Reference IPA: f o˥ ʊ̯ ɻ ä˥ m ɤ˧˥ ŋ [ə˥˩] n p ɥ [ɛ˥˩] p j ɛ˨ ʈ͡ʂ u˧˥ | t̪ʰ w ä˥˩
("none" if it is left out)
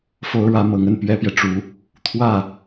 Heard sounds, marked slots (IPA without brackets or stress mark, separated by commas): ə˥˩, ɛ˥